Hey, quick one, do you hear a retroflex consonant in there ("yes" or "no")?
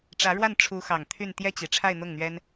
yes